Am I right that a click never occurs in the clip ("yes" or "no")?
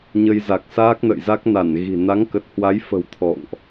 yes